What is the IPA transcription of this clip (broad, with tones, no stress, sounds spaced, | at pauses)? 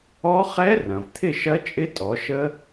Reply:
ɔ˦˥ χ ɛ˦˥ r ɐ̃˩ v t̪ʰ ɪ˥˨ ʃ ɐ˦˥ t͡ʃʼ ɪ˦˥ tʼ ɔ˩˧ ʃ ə˦˥